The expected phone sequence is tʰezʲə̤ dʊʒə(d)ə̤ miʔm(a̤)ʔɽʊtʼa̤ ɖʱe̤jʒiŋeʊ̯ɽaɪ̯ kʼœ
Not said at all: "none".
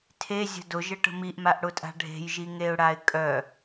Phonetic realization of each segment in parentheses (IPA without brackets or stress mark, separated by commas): ʈ, a